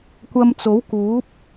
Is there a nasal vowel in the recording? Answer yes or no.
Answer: no